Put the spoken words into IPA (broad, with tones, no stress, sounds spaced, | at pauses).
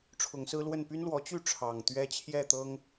ʈ͡ʂʰ ʊ˨˦ ŋ s ɹ̩˦ l w ə˥˨ n p y˦ n l w ɔ˨˦ t͡ɕ y˥˨ ʈ͡ʂʰ ɑ˨˩ ŋ t̪ ɥ ɛ˦ t͡ɕʰ j ɛ˥˨ t̪ ɤ˦ ŋ